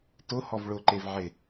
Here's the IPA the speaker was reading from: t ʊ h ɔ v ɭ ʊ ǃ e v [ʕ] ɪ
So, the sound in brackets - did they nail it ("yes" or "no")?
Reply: yes